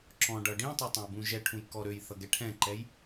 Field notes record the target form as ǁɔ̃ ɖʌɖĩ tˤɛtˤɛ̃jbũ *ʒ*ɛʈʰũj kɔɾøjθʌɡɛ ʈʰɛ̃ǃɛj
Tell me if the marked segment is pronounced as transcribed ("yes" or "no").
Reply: yes